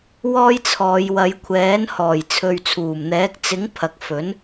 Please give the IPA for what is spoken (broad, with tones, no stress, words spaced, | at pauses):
wɔː˥jt͡sʰɔː˨˧j wɐ˨˧jkʷʰɛː˨˥nhɔː˨˩j t͡sʰɵ˨ɥt͡sʰuː˨˩mn̪ɛː˨˥k̚ t͡sɪ˨˥ŋ pʰɐ˨k̚fɵ˨˥n